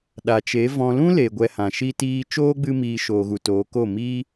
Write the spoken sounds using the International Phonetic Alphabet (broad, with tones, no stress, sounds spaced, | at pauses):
ɗ a˨ t͡ʃ e˨˦ v ɔ̃˧ l ũ˦ l e˨ ɡʷ ɛ˧ h ã˨ ʃ i˦ t iː˦ t͡ʃ oː˦ ɡ͡b ɨ˧ m iː˨ ʃ oː˨ ɣ u˨ t oː˨˦ k o˦˨ m i˦